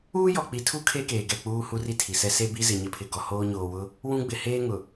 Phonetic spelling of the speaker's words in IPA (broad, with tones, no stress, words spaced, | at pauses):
uː˦jɔ˨ k͡pi˨tʰu˦ kʰe˦keː˨ɡɛ˦˨k͡puː˦ hu˦ri˦ tʰi˨sɛ˦ se˦bi˦zɪ˨ ɲɪ˦pʰɪ˨ ɡɔ˨hoː˦ɲoː˨wʊ˦ | wũ˦ɡ͡bɪ˨ heː˦ŋʊ˨